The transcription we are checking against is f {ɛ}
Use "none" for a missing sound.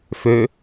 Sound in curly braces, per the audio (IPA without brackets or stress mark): ø